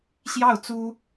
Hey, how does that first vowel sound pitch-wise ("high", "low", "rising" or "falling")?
falling